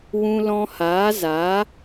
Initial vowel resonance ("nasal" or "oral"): nasal